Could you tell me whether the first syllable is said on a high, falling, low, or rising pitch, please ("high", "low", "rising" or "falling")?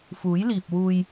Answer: rising